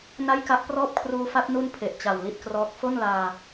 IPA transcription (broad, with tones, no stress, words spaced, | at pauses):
na˥˩jka˥˩ʔ prɔː˥˩p̚kʰruː˦˥fa˦˥t̚ nu˥˩npʰe˨˩ʔ t͡ɕa˨˩wli˦˥t̚krɔː˦˥k̚ fo˥˩nlaː˧